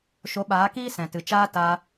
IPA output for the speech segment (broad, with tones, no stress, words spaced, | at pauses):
ʃo˨˦ɓaː˨˦kiː˦ sɛ̃˨tɨ˨t͡ʃaː˦ taː˧